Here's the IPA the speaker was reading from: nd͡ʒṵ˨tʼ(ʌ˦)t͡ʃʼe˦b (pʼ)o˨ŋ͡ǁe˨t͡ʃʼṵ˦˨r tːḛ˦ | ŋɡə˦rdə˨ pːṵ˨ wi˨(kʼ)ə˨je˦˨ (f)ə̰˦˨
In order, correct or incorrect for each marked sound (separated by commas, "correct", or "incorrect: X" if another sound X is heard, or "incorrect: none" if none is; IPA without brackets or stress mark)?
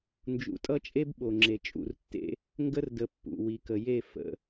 correct, incorrect: ɓ, incorrect: k, correct